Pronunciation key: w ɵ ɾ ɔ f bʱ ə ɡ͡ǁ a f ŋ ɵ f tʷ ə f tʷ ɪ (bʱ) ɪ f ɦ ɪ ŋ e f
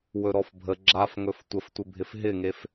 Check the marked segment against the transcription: correct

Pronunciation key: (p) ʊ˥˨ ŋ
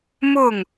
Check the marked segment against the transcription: incorrect: m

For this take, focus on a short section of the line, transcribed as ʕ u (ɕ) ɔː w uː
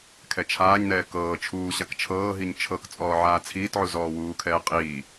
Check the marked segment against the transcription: incorrect: z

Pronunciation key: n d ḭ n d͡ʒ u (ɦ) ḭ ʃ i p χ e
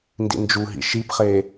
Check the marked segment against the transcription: correct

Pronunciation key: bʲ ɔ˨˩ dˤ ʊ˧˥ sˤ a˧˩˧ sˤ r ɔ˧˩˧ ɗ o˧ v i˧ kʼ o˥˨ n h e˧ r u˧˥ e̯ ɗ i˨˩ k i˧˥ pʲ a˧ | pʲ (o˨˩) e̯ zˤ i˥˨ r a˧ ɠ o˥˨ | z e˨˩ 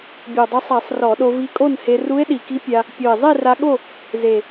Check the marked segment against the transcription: correct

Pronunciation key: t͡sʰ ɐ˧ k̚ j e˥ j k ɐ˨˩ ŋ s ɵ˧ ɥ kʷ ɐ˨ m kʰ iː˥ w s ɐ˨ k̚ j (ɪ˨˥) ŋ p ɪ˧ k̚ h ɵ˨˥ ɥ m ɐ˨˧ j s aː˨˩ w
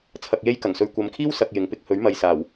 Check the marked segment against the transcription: correct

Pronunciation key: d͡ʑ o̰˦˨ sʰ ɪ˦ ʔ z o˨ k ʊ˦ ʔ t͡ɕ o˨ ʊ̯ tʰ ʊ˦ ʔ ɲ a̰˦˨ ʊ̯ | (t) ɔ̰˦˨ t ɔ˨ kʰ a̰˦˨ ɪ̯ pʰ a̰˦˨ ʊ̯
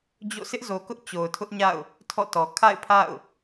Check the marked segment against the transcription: incorrect: tʰ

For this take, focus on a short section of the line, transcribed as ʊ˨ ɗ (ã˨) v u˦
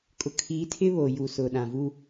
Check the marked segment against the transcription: correct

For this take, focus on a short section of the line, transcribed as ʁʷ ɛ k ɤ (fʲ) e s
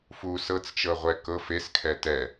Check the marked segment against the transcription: incorrect: f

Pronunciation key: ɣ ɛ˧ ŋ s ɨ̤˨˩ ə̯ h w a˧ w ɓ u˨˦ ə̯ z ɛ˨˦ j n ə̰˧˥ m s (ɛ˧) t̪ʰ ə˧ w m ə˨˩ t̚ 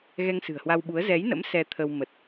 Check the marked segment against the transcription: correct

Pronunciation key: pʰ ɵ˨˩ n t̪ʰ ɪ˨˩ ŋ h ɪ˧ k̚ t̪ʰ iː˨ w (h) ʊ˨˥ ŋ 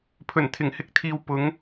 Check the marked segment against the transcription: incorrect: p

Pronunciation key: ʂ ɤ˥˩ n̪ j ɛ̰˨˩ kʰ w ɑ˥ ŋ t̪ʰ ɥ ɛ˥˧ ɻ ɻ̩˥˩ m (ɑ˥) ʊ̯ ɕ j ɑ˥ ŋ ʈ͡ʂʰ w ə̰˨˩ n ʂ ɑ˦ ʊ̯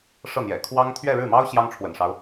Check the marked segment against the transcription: correct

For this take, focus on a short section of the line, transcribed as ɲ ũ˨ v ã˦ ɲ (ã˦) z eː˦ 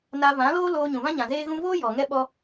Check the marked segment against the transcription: incorrect: ã˨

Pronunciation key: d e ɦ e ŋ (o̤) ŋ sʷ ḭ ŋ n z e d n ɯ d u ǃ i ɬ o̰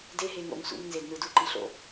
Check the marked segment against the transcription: incorrect: o̰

